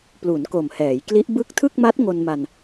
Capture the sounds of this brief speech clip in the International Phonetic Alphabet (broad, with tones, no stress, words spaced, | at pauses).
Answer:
plu˩˦nko˨˩mhɛː˩˦jkli˦˥ʔ bɯ˦˥k̚ tʰɯ˥˩k̚ma˦˥t̚ ŋo˧nma˧n